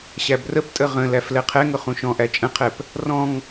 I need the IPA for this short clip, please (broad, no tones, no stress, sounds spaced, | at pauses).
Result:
ɕ æ b r ə p tʼ ə ʁ ə̃ l æ f l ɛ qʰ ɛ ŋ ʊ χ ũ ʃ ɔ̃ ʔ æ t͡ʃʼ ə̃ qʰ ɛ p | r ɔ̃ ŋ